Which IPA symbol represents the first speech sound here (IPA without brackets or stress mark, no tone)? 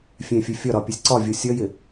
fʲ